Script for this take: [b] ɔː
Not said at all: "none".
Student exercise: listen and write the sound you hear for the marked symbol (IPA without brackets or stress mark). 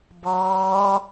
b